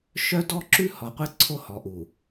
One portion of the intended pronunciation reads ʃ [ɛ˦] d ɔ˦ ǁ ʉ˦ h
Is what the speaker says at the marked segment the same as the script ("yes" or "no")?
no